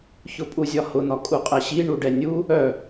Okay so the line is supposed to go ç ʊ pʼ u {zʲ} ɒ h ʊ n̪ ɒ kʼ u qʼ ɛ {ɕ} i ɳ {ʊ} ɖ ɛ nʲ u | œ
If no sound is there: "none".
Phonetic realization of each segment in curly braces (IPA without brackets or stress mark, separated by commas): zʲ, ɕ, u